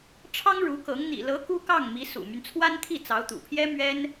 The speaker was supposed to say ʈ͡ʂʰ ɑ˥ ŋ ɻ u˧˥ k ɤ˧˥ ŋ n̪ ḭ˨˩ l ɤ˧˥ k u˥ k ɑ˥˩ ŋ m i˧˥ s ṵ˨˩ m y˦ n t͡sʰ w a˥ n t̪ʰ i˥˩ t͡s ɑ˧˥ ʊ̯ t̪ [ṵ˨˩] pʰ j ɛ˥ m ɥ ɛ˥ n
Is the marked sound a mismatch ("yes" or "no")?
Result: no